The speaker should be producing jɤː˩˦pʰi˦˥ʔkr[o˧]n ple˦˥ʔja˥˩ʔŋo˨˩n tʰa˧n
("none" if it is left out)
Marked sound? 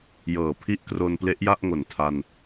o˧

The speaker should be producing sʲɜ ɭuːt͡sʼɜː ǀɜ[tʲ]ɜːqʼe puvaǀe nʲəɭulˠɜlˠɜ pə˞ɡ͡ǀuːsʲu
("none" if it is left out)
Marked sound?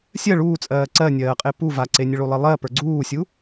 nʲ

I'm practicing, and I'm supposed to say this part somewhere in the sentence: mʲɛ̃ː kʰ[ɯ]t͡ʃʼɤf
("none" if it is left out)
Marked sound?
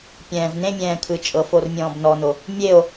ɯ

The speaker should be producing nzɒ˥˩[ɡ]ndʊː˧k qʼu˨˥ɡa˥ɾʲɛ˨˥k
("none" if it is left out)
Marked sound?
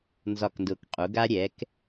k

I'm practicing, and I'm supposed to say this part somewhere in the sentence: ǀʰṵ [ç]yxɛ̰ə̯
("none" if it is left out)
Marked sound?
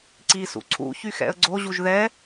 ç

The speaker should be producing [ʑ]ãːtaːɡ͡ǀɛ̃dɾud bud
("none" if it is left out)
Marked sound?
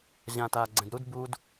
ʑ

